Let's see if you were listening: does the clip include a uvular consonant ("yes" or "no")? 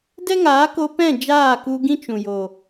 no